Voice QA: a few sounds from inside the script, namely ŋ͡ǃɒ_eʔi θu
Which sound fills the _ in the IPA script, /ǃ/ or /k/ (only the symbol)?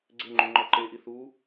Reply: ǃ